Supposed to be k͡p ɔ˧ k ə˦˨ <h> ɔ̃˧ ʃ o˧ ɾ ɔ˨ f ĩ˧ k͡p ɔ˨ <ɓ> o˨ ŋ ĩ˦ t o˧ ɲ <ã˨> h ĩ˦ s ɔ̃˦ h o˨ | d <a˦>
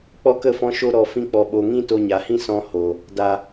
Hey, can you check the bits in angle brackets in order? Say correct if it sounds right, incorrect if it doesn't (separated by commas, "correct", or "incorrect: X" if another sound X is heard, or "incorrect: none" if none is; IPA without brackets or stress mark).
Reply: incorrect: f, correct, incorrect: a˨, incorrect: a˨